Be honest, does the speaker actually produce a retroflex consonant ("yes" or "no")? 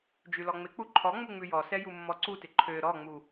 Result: no